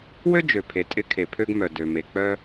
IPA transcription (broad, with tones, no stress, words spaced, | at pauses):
wø˥d͡ʒø˩pʰe˩ tʼɪ˧ kʰe˩pʰø˧ɡmœ˩ dø˩ me˩k͡pœ˧